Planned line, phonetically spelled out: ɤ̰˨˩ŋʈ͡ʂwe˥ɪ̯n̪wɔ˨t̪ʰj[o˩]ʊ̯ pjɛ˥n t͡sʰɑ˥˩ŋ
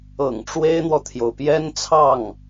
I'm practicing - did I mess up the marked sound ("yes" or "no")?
no